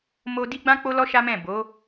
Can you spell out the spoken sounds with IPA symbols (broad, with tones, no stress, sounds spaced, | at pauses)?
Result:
m o˧ d i˦ ɡ͡b ã˦ k͡p o˦ l ɔ˦ ʃ a˦ m ɛ̃˦˨ b o˨˦